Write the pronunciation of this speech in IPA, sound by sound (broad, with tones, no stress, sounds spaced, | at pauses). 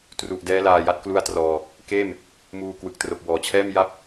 t r u˨˩ ʔ d ɛː˦˥ l aː˧ j a˦˥ t̚ k l u˥˩ a̯ t r ɔː˧ | k eː˥˩ m | m uː˧ k w ɯ˨˩ k̚ t r o˨˩ k̚ w ɔː˩˦ t͡ɕʰ ɛː˥˩ m j a˦˥ p̚